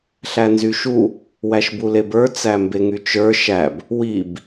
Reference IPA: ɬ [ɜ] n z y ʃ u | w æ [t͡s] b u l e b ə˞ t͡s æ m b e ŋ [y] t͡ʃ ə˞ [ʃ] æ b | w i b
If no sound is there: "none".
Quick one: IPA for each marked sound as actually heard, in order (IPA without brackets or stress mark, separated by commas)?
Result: æ, ʃ, y, ʃ